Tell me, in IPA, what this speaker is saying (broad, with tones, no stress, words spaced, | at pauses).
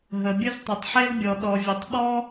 ɦə˨bʲə˥z tˤɘ˨tˤħe˥lbʲɔ˨ ɗɔ˨vʲə˨tˤɓɔ˥